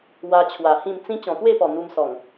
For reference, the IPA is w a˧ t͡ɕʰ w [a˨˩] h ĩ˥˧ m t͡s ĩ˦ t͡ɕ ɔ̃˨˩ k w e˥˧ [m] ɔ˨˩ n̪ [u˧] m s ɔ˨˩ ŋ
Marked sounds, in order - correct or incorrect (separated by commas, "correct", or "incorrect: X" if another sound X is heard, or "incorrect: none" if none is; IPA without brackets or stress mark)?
correct, incorrect: p, correct